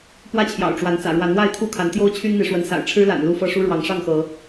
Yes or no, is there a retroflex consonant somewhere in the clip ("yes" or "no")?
yes